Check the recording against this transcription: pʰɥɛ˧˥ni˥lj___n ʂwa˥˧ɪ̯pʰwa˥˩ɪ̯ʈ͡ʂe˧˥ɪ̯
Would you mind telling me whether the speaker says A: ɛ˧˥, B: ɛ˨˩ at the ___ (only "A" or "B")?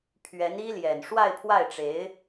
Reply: B